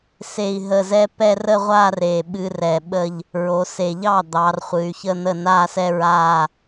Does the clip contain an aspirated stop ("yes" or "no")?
no